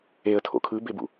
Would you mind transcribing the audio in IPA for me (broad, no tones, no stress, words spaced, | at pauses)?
eə̯tʰo̰ kʰɯbebṵ